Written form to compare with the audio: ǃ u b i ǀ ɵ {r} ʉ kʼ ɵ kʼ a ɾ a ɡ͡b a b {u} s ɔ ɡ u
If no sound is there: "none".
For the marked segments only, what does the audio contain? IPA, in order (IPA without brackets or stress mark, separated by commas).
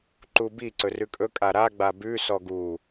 r, ʉ